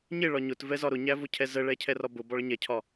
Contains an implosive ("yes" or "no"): no